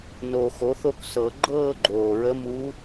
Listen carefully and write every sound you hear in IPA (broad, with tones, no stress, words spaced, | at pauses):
no˨˩ xo˩˥θo˥˧ksɤ˨˩˦ ɡ͡ǃɤː˥˧ɡ͡ǃoː˨˩ɹə˧˥muː˧˥